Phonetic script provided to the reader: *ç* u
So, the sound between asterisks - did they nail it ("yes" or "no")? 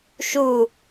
no